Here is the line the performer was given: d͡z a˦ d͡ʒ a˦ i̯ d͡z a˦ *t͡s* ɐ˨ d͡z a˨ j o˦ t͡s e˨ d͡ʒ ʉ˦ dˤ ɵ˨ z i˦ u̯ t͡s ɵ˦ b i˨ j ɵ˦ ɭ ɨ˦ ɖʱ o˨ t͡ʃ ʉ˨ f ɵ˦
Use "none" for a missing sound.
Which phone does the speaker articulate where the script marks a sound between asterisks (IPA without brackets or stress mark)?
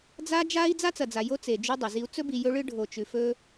t͡s